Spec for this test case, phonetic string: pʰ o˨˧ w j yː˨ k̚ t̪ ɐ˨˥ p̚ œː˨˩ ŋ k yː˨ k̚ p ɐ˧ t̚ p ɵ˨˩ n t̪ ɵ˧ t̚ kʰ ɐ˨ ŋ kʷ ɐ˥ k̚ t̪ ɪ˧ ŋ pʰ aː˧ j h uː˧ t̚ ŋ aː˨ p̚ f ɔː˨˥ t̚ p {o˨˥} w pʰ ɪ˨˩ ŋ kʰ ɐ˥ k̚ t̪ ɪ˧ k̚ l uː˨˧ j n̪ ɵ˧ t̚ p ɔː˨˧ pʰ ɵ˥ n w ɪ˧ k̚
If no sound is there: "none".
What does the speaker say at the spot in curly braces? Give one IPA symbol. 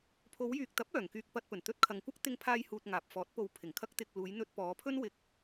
o˨˧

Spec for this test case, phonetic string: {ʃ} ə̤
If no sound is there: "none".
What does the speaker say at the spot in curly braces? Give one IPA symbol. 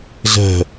z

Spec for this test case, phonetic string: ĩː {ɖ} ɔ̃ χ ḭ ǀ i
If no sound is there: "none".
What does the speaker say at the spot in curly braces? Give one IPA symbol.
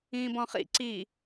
b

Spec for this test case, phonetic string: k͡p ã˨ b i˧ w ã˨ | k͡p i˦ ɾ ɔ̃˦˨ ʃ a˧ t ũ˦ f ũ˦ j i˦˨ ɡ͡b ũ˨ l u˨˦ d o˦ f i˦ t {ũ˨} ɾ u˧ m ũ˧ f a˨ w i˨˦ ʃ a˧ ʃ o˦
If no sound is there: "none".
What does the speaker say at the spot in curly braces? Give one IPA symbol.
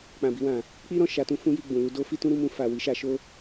ũ˦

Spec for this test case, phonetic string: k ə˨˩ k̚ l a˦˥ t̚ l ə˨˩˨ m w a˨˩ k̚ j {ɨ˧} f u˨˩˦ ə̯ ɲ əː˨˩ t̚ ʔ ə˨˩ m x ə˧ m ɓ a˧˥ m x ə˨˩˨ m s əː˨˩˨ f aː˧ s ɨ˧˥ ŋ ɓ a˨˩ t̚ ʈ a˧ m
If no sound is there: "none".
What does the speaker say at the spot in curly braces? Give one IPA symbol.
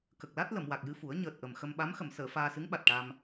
ɨ˧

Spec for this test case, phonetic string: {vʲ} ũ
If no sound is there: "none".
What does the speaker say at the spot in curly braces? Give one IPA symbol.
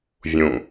vʲ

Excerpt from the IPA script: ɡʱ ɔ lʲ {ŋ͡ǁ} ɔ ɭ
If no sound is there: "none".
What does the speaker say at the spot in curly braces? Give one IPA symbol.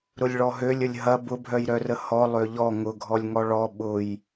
ŋ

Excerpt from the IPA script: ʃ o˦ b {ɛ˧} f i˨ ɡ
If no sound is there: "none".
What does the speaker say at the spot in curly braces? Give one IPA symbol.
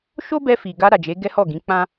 ɛ˧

